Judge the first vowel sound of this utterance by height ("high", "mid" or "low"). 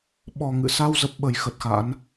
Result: mid